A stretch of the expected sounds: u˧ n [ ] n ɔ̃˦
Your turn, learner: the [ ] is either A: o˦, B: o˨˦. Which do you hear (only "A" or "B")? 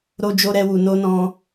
A